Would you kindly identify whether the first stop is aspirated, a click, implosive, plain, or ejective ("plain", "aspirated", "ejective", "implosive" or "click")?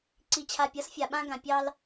click